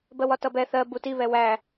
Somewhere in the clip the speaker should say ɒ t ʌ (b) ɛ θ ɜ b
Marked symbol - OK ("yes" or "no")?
yes